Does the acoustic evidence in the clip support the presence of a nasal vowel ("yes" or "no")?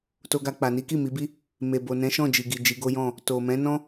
yes